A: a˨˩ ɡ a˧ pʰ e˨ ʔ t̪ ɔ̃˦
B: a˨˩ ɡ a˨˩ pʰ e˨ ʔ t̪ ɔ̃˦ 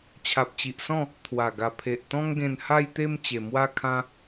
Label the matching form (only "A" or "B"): B